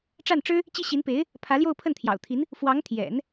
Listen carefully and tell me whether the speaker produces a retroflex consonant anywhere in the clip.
yes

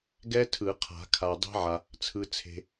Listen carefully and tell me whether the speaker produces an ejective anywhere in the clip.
no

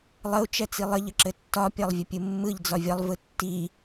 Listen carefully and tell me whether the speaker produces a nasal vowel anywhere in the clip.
no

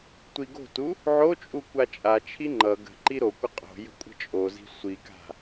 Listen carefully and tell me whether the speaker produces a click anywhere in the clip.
yes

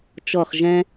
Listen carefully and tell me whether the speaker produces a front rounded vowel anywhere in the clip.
no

